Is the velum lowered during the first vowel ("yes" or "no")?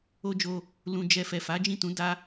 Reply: no